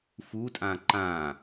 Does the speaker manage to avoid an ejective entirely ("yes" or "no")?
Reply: no